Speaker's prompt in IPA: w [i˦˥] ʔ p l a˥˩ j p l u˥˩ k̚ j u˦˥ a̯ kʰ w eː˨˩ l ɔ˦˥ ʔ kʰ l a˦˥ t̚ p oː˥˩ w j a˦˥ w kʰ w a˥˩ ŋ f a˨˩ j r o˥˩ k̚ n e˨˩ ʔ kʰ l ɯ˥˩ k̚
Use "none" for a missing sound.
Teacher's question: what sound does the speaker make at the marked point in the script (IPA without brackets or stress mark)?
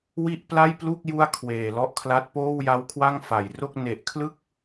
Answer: i˥˩